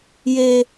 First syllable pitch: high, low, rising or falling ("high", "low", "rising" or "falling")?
high